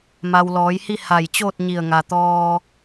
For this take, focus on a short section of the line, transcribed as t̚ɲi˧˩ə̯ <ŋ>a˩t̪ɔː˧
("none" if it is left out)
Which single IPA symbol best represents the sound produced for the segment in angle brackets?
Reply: ŋ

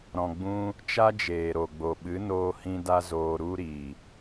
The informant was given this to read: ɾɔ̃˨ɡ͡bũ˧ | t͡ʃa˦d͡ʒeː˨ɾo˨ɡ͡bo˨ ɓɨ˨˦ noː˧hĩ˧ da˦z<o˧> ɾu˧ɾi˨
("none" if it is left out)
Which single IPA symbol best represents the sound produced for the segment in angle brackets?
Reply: oː˧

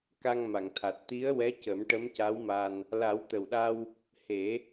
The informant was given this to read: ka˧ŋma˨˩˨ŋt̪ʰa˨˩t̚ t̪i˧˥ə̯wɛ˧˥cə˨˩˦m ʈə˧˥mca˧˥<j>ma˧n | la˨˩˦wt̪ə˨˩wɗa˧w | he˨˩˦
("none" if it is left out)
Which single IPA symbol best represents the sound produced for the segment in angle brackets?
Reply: w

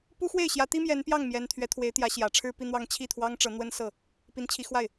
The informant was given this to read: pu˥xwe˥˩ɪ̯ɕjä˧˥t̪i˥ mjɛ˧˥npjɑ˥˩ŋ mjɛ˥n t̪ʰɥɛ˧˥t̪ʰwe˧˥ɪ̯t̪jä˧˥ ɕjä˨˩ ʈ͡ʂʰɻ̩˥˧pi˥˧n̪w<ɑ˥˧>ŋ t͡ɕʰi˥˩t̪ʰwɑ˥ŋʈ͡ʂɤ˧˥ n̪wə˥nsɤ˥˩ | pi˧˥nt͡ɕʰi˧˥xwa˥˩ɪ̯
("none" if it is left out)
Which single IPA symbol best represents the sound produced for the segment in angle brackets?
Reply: ɑ˥˧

